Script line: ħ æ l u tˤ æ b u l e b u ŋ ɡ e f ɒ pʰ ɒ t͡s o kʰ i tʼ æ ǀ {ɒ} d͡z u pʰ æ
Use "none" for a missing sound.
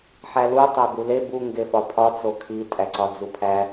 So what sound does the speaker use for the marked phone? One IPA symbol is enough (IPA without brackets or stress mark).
ɒ